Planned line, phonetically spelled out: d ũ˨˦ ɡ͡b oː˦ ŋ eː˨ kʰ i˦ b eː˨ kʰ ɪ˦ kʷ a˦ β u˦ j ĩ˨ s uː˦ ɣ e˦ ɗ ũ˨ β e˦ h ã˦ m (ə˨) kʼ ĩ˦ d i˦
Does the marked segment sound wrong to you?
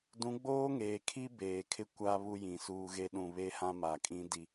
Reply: yes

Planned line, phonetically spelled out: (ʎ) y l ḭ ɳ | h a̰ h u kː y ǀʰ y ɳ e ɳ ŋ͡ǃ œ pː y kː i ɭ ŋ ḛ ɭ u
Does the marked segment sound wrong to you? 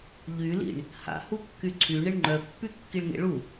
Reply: no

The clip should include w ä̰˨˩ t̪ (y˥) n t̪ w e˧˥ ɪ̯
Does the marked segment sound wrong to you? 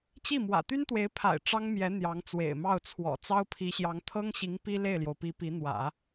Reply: no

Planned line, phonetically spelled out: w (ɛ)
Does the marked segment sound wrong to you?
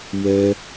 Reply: no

